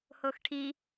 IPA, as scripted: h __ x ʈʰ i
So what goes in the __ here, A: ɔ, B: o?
B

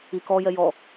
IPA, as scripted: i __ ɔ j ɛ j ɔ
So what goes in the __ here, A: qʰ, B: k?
B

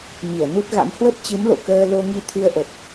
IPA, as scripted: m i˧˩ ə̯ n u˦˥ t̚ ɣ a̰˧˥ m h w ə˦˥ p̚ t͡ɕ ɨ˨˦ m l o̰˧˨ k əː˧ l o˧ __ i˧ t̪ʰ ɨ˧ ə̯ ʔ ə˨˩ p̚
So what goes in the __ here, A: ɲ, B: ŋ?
B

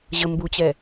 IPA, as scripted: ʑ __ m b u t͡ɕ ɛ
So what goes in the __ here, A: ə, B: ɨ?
A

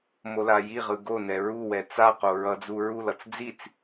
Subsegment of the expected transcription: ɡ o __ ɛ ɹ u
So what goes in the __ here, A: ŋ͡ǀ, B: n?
B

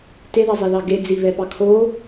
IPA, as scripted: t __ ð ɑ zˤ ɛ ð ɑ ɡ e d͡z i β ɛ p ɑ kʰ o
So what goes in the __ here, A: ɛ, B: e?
B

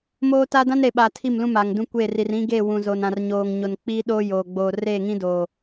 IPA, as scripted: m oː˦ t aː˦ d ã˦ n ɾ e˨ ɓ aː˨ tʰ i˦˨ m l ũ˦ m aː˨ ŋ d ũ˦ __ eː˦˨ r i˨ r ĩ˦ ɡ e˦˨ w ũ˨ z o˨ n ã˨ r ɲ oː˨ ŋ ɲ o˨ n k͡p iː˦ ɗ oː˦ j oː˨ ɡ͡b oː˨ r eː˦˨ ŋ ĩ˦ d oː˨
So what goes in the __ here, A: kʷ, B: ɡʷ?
A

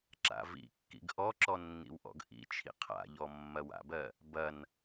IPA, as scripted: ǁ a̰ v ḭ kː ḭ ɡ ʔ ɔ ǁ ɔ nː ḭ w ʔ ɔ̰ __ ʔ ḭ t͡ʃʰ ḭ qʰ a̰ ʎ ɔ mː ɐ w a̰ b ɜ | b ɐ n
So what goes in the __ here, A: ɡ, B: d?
A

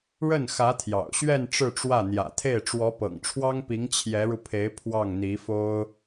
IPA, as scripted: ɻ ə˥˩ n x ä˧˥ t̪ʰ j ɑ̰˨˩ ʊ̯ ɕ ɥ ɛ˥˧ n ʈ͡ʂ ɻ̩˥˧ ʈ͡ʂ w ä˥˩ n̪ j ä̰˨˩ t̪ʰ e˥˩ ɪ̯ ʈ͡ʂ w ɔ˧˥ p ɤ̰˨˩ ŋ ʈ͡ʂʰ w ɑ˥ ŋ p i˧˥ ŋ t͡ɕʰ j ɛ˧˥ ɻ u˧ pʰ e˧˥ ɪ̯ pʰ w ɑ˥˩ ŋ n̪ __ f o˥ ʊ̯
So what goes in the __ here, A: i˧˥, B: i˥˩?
A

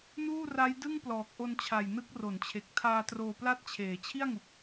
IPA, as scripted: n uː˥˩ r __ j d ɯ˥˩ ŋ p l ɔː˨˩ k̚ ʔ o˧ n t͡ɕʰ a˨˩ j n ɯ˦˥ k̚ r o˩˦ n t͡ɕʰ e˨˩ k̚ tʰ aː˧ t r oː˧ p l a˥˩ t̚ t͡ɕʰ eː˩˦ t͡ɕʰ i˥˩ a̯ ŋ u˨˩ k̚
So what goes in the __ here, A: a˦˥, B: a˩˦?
A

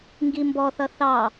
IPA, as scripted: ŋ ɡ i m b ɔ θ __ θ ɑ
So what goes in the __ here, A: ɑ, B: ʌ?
B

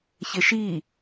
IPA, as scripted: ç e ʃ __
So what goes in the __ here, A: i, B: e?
A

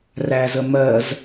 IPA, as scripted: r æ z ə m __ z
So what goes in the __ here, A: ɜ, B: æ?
A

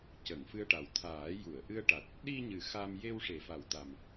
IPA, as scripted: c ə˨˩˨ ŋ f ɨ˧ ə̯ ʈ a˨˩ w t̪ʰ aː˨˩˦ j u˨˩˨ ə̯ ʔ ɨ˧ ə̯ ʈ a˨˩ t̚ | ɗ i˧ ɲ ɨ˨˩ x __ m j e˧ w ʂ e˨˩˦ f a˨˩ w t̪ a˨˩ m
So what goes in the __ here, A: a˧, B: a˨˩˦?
A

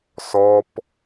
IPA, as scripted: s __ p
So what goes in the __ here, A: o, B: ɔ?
B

